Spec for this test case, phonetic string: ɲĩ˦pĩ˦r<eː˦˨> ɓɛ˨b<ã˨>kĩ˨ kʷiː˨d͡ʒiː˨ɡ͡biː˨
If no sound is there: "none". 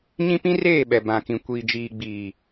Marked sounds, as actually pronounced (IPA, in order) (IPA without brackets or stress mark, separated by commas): eː˦˨, ã˨